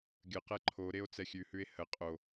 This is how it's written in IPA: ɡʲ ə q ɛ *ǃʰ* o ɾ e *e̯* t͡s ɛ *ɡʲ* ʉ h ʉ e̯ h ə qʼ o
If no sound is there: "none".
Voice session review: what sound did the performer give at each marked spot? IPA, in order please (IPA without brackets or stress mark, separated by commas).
ǃʰ, o̯, xʲ